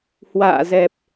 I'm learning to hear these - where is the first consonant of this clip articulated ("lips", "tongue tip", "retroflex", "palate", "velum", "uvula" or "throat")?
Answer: throat